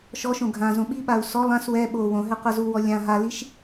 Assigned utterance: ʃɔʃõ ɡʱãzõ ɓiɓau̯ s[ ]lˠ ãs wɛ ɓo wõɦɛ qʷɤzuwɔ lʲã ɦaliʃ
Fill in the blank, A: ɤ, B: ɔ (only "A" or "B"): B